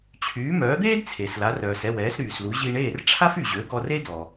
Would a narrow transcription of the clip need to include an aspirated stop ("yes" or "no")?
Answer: yes